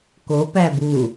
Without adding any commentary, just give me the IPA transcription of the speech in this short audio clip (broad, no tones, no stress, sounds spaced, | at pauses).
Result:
k o p æ b u